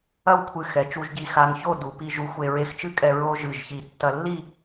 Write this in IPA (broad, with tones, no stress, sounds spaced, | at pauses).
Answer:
ɐ˥˧ w kʷʰ ɨ˧˩ x ɛ˩˧ t͡ʃ u˧ ʒ ɟ i˧˩ x a˧ n ç o˥˧ d u˩˧ p i˧ ʒ u˧ xʷ e˧ ɹ e˧ x t͡ʃ ɨ˥ kʼ ɛ˧ ɹ o˥ ʒ ɨ˧˩ ʒ ç i˧˩ tː ɐ˧ lː i˥˧